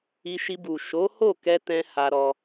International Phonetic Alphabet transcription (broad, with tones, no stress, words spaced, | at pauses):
i˧ ʃi˧bu˨ ʃo˨˦ho˦˨kɛ˧ tɛ̃˦ha˧ɾɔ˧